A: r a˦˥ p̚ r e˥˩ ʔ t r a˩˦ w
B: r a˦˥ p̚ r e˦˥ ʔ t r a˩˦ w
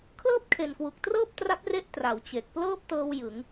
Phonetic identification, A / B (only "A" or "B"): B